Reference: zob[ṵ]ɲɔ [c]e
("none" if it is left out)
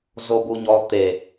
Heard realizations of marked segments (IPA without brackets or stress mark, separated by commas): u, t̪